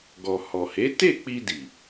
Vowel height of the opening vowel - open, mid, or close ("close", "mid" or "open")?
mid